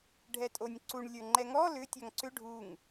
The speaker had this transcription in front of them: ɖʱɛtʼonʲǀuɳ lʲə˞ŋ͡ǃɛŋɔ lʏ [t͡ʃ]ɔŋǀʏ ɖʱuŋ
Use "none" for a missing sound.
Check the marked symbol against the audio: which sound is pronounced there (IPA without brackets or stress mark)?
tʲ